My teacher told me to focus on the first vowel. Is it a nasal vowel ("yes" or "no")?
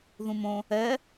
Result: yes